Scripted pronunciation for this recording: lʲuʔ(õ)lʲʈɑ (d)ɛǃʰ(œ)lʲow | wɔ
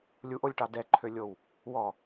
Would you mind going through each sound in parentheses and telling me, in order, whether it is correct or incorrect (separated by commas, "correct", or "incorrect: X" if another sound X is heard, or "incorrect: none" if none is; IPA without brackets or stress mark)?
incorrect: o, correct, incorrect: ø